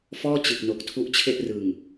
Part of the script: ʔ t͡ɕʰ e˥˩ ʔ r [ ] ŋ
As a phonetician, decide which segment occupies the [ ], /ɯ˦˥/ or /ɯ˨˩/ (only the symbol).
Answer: ɯ˨˩